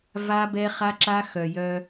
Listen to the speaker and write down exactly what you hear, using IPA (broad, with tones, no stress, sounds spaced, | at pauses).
v a˦ b ɛ˦ χ a˦ ǁ a˦ x œ˨ j œ˦